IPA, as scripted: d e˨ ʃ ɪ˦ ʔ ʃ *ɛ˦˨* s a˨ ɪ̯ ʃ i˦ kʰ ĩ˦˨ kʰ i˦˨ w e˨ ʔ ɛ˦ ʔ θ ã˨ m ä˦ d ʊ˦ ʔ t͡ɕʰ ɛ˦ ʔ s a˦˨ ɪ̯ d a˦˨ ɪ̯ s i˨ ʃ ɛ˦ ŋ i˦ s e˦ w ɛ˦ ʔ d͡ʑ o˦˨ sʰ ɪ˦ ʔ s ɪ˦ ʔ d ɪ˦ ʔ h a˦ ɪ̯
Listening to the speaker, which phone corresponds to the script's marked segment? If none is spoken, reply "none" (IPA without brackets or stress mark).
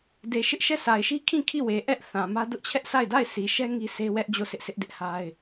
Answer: ɛ˦˨